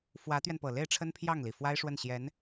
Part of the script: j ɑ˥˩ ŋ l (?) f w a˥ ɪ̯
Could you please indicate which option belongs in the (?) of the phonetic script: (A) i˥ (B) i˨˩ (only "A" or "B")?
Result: B